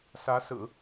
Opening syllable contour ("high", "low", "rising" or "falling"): rising